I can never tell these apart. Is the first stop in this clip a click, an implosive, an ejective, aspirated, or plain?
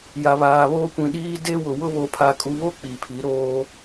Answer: plain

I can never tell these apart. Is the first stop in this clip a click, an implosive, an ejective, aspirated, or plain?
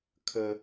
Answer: aspirated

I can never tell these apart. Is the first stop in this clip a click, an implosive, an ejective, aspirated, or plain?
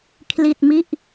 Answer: aspirated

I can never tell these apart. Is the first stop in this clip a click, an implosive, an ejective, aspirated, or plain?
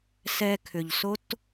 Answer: aspirated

